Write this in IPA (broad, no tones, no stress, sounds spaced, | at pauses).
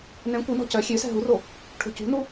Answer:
n ɛ̃ kʷ i n ɔ̤ c œ xʲ ø s ɛ̤ ɦ u r o | ʈʰ o̤ c ṳ n u